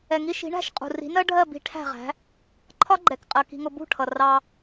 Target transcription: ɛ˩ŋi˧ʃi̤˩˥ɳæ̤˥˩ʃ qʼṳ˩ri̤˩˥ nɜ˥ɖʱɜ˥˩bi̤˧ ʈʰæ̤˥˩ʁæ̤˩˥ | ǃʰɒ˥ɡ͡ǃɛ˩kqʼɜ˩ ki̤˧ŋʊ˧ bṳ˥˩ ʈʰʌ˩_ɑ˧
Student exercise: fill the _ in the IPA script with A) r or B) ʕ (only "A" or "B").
A